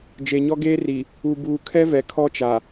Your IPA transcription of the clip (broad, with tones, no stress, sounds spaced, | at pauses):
d͡ʒ e˨ ɲ ɔ˦ ɡ eː˦ r i˨ | u˨ b uː˨ kʰ ɛ˦ v ɛ˨ kʰ ɔ˦ t͡ʃ a˨